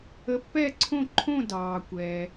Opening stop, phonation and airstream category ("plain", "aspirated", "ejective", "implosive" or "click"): plain